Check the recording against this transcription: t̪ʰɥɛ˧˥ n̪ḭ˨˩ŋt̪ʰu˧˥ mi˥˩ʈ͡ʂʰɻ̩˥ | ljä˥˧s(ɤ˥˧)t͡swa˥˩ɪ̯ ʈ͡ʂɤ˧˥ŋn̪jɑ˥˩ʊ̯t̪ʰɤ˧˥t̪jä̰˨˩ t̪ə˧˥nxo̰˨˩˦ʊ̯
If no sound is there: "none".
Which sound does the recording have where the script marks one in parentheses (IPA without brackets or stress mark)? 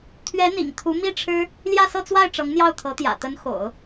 ɤ˥˧